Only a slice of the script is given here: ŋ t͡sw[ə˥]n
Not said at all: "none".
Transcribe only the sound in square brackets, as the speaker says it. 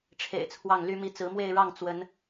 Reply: ə˧˥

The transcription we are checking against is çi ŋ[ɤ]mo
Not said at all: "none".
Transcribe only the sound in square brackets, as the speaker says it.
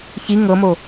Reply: ɤ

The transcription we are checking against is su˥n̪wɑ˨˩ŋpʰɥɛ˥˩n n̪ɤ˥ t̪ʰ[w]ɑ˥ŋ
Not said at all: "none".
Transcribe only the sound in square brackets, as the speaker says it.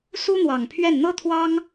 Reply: w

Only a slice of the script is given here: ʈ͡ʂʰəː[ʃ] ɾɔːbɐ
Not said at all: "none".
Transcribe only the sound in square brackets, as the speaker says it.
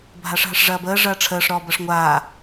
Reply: ʂ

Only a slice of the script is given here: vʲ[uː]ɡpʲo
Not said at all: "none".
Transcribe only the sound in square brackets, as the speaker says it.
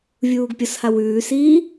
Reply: uː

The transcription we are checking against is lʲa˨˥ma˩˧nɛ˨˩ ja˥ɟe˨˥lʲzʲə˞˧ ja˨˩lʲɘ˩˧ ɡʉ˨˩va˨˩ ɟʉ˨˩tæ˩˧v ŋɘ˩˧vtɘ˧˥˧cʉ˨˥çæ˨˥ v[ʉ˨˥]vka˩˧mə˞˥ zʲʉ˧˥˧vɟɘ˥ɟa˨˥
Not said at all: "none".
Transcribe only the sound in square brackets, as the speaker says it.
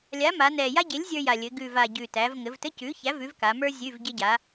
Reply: ʉ˨˥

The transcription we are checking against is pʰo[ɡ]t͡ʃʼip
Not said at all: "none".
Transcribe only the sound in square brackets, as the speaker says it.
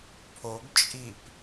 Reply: ɡ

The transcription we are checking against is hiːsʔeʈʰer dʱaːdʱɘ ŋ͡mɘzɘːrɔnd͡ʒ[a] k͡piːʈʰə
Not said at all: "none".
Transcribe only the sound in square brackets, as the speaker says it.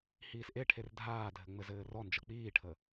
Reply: ʌ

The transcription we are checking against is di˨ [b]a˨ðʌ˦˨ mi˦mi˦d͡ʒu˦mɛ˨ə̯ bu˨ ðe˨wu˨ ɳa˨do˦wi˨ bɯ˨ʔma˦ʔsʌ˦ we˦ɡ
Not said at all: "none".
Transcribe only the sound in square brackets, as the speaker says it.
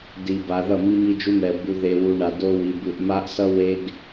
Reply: b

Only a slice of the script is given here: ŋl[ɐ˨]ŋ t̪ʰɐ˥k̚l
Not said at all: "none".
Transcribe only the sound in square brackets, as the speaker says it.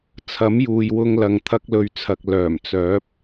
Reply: ɐ˨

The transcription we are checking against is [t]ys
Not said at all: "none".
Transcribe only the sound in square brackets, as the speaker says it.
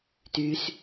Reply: t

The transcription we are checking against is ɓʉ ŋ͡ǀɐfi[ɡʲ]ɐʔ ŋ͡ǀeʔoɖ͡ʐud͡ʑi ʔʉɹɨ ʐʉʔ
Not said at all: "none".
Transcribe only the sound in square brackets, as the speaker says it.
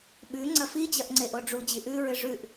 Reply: d͡ʑ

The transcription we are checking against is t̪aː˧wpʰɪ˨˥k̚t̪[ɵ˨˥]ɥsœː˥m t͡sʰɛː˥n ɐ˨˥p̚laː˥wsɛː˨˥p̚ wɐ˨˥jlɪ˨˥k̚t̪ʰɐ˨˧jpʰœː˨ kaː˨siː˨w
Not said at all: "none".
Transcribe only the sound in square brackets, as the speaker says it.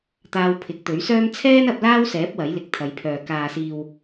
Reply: ɵ˨˥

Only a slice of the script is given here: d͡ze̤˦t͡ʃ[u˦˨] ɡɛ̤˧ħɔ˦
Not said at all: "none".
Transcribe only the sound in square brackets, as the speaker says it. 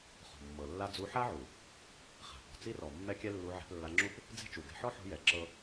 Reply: u˨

